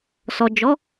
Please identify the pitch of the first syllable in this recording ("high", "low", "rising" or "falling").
low